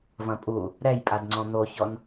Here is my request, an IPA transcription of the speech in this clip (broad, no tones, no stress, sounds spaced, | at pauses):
v ɐ̃ pʼ u | ɾ ɛ j pʼ a d ŋ͡ǀ ɔ̃ n̪ o ç ɔ n